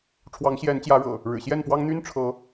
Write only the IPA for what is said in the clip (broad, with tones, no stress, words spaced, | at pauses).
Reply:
ʈ͡ʂʰwɑ˨˦ŋɕjɛ˨˦nt͡ɕjä˨˦ɻɤ̰˨˩ | ɻɻ̩˨˩ɕjɛ˥˨npwɑ˦ŋ n̪y˦nʈ͡ʂʰɤ˨˦